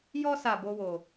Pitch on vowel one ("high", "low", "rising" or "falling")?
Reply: high